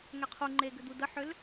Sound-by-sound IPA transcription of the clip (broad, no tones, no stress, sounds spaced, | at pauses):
ŋ ɛ qʰ u ŋ͡ǃ e ɡ ʏ d̪ u d ə ħ ʏ l